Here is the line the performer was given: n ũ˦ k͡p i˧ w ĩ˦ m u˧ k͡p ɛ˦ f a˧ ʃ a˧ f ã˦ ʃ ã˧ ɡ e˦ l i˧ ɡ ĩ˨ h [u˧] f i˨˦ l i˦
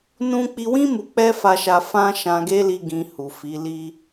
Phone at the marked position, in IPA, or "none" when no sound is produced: u˨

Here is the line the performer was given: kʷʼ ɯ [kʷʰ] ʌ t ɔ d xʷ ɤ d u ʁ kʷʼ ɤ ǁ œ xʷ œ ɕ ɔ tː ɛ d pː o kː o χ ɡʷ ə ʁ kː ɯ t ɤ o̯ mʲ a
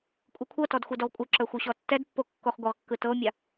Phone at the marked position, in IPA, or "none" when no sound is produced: kʷʰ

